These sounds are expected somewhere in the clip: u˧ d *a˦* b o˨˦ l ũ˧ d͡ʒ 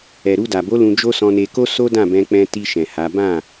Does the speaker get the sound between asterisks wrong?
yes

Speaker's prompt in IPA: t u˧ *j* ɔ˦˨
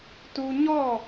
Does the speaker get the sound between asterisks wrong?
yes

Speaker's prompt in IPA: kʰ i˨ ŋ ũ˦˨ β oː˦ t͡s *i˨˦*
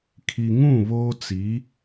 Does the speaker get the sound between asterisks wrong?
no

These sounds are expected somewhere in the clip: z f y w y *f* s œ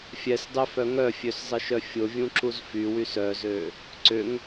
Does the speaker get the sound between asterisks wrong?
yes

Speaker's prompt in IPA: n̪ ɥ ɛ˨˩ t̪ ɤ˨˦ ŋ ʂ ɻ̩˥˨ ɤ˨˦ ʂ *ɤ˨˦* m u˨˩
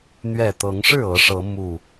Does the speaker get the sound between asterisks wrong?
no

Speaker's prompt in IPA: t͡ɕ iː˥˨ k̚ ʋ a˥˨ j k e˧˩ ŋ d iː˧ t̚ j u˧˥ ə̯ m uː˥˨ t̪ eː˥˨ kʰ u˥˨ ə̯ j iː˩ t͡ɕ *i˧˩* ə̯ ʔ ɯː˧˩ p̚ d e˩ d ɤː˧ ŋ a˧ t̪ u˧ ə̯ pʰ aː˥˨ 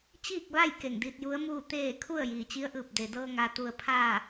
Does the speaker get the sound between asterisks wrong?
yes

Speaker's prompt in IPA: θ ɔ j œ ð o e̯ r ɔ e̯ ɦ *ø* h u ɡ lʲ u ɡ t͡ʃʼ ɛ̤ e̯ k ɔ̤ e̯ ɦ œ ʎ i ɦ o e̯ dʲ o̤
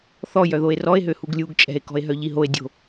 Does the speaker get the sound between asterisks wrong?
no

